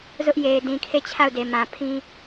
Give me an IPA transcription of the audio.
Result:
z ʊ˦ ʔ j e˨ ɪ̯ d ĩ˨ kʰ e˦˨ t͡ɕʰ a˦˨ ʊ̯ d e˨ m ã˨ pʰ ĩ˦

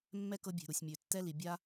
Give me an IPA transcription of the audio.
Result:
mː ɛ˦ k ɤ˧ bʲ e̤˨ ɾ u˨ sʲ mʲ ø˨ tː ɛ˦ l i˨ bʲ a˦

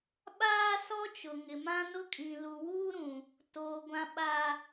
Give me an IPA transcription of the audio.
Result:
ɓ aː˦ s ɔ˦ t͡ʃ ʊ˨ ŋ ɪ˨ m ã˦ n ʊ˦ kʼ ĩ˨ l u˨ w uː˦ ɾ ũ˨ | t oː˨ ɡʷ ã˨ ɓ a˨

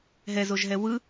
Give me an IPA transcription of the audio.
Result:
ɦ ɛ z o ʒ ɦ ɛ w ɯ

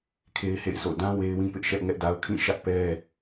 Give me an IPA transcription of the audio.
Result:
kʰ e˦ ɪ̯ h ḛ˦˨ ɪ̯ s o̰˦˨ d ã˦ w e˦ ɪ̯ w ĩ˦ p ɪ˦ ʔ ʃ ɛ˦ ʔ ŋ ɛ˦ ʔ d a˦ ʊ̯ kʰ ĩ˦˨ ʃ ä˦ ʔ p ɛ˦

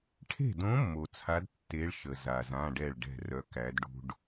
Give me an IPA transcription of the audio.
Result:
ʈʰ e̤˥˨ d õ˧˥ mː o˨ t͡sʰ a˧˥ d tː e˧˥ ɭ ʃ ə˨ z a˨ z ã˧˥˧ ɖ ɛ˥˨ ɭ ɖ ɛ̤˥˨ r œ˧˥ k æ˧˥ d ɖ ṳ˥ ɖ

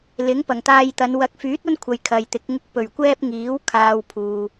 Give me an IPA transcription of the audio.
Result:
l ɪ˨˥ ŋ p ɐ˨˩ ŋ t̪ aː˧ j t̪ ɐ˨˧ n w ɐ˨˥ k̚ f yː˨˥ t̚ ɐ˥ n kʷʰ ɐ˨ j kʰ ɐ˨ j t̪ ɪ˨˥ k̚ ŋ ɪ˧ k̚ p ɵ˨˩ ɥ kʷ ɛː˥ p̚ ŋ iː˨˥ w kʰ aː˧ w pʰ uː˨

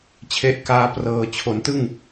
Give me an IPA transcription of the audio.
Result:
t͡ɕʰ e˦˥ ʔ k aː˦˥ p r ɤː˨˩ t͡ɕʰ o˩˦ n t ɯ˥˩ ŋ

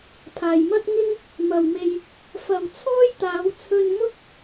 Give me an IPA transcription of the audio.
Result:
pʰ aː˨ j m ɐ˧ t̚ ŋ ɪ˥ ŋ | m ɐ˨ w m e˧ j | f ɐ˨ w t͡sʰ ɔː˥ j t̪ aː˨˧ w t͡sʰ ɵ˧ n m ʊ˥ k̚

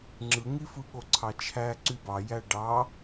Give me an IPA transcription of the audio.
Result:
ŋ͡ǁ ɯ ŋ i f ɯ ɠ o ǀʰ ɑ t͡ʃʰ æ ǀ y b ɑ j æ ɖ ɑ

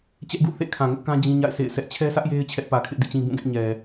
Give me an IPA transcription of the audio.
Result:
t͡ɕ ɛ˦ ʔ ɡ ṵ˦˨ θ ḛ˦˨ kʰ ã˨ ŋ ʊ˦ ʔ k ã˦ d͡ʑ ĩ˦ ɲ a̰˦˨ ɪ̯ s ḛ˦˨ ɪ̯ s ɛ˦ ʔ t͡ɕʰ ɛ˦ sʰ ä˦ ʔ j e˦ ɪ̯ t͡ɕʰ ɛ˦ ʔ p ä˨ kʰ ɪ˦ ʔ d ḭ˦˨ t͡ɕ ĩ˦ b ũ˦˨ ɡ ɛ˦ ʔ ɲ ɛ˨

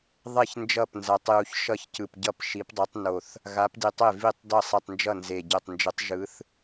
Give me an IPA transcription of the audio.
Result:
ðˤ e˥˩ ç n d͡ʒ ʌ˥˩ p n z a˨˥ tˤ j u˧˩ ç ʃ ʌ˥˩ ç c ɯ˧˩ p ɟ ʌ˥˩ p ʃ i˨˥ p dˤ ɯ˨˥ tˤ n o˧˩ θ | ɣ a˨˥ p d i˧˩ tˤ e˥˩ v i˥˩ tˤ d ʌ˥˩ sˤ i˧˩ tˤ n d͡ʒ ʌ˥˩ n z e˧˩ ɟ ɛ˧˩ tˤ n d͡ʒ ɯ˨˥ tˤ ʒ ɯ˨˥ θ

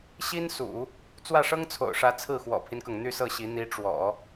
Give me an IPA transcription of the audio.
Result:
ɕ i˥ n s ṵ˨˩˦ | t͡s w ä˥˩ ʂ ɤ˥ ŋ t͡sʰ o̰˨˩ ʊ̯ ʂ ä˧˥ t͡sʰ ɹ̩˥˩ x w ɔ̰˨˩ pʰ i˦ n k ɤ˩ ŋ n̪ y˥˧ s ɤ˥˩ ɕ i˧˥ n̪ i˧˥ ʈ͡ʂ w ɔ̰˨˩˦

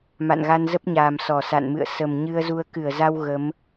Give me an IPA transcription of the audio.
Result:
m a̰˧˨ n ɣ a˧ n z ə˦˥ p̚ ɲ aː˨˩ m s ɔ˧˩ s a̰˧˨ n m ɨ̰˧˨ ə̯ s ə˨˩ m ɲ ɨ˧ ə̯ z u˧ ə̯ k ɨ˧˩ ə̯ z a˧ w ɣ ə˨˦ m

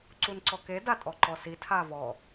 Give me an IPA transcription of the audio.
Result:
ǀ u n ǀ ɔ k e d a tʼ ɔ ǃ ɔ s i tʰ a v ɔ

